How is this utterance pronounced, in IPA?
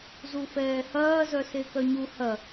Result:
zufɛːhɐː zœsekœɲu hɐ

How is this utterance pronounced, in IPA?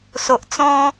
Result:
so˨ʔt͡sɔ̃˧

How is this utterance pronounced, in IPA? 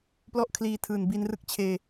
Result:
plɔ˥˩ʔkʰliː˧tʰɯː˨˩n bi˧nrɯ˦˥k̚t͡ɕʰeː˧

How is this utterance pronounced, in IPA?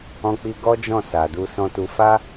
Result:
ɔ̃˧k͡pi˧ ɡɔ˦d͡ʒɔ̃˦˨ sa˨du˧ sɔ̃˧tu˧ fa˦

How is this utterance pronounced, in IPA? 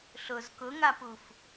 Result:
ɬʊz kʊŋapuf

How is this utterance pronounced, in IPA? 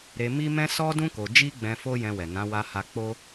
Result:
ɾe˧mi˦mɛ̃˦ sɔ˦dũ˦ ko˧ d͡ʒi˦ɡ͡bɛ̃˧ fo˦jɛ̃˧wɛ˨nã˨˦ wa˧ha˧ k͡po˦

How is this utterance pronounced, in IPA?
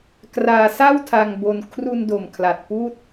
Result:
kraː˧sa˥˩wtʰa˧ŋbo˧n kʰru˧ndo˨˩mkʰla˨˩t̚ puː˥˩t̚

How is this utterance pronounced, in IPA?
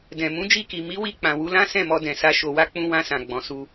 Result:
dɛ̃˨ mũ˨˦d͡ʒi˧ki˨ mi˨˦wi˧ k͡pã˨wu˧lã˦ sɛ̃˦˨mɔ˧dɛ̃˨sa˧ ʃo˨wa˧ k͡pũ˧ wã˧sã˨ ɡ͡bɔ̃˨su˧

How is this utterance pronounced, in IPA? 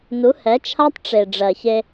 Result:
nu˨˦hɛ˨˦t͡ʃʰa˦tˤ ʈ͡ʂe˨ ɖ͡ʐɜ˨çe˧

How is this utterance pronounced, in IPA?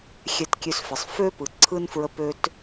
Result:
xʲɛ˧tkʲø˧sfə˩sˤ føː˥pɯ˩ ǀʰɯ˥nfɹə˧ pø˧t

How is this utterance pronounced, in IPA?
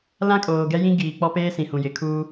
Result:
lã˦kʼoː˨ ɡɛ˦jĩ˦ ɡiː˨k͡pɔ˦peː˦ sĩ˨hũ˨jɪ˨ kʰuː˦

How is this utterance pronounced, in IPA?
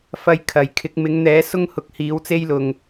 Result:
fɐ˧jkʰɐ˨˩jkʰɪ˨˥k̚ mɪ˨˥ŋn̪ɛː˨˥ sʊ˥ŋhʊ˧k̚ hiː˨˥wt͡se˥jlʊ˨ŋ

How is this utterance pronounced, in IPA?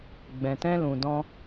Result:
ɡ͡bɛ̃˨tɛ̃˧ lũ˨dɔ̃˧

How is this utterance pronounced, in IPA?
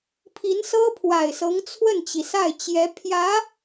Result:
pʰi˧˥nsɤ˥pʰwa˨˩ɪ̯sɤ˧˥ŋ t͡sʰwə˥˩nt͡ɕi˩sa˥˩ɪ̯t͡ɕjɛ˧˥ pʰjä˧˥

